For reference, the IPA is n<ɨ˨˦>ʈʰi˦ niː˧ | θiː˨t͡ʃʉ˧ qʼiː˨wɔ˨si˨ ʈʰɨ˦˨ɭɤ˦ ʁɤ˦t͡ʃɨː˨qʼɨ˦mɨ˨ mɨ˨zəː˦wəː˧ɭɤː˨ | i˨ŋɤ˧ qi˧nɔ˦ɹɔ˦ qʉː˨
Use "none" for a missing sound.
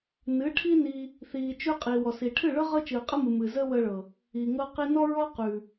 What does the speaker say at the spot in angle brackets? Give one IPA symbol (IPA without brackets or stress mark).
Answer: ɨ˨˦